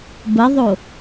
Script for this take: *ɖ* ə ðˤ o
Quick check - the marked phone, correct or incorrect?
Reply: incorrect